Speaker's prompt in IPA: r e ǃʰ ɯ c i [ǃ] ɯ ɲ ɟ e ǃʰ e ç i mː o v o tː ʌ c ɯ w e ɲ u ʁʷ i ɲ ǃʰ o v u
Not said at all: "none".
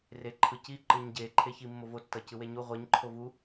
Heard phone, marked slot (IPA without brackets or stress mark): ǃ